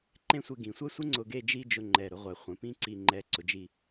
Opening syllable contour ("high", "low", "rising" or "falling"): falling